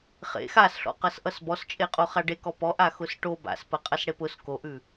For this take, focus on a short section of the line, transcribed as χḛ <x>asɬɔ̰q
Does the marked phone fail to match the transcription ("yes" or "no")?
no